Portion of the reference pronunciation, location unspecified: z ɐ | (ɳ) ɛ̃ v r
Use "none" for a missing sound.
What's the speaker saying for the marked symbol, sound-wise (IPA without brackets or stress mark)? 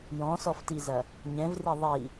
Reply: ɲ